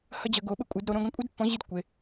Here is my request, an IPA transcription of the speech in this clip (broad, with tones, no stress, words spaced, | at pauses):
hɐ˥d͡ʑɐ˧˥ɡo˧˥ ɓɘ˥kʷʼɨ˧˥dɾo˧˥ ɾõ˥ɡɐ̃˥ kʷʼe˥dpːɔ̃˧˥ ʑi˥dkʷe˧˥